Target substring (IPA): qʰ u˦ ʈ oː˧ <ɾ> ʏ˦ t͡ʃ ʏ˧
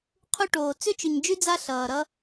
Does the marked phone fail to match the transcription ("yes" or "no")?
yes